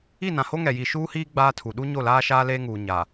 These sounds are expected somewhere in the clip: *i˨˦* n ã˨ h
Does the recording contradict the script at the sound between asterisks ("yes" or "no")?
yes